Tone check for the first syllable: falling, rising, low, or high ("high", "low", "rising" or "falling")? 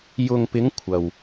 low